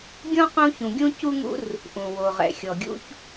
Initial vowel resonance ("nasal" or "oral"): nasal